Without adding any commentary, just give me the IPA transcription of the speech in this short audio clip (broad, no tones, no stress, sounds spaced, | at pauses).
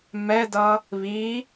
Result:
m ɛ d ʌ | β i